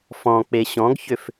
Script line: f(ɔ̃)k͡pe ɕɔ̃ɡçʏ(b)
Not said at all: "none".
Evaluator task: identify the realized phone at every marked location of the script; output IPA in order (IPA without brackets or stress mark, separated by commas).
ɔ̃, f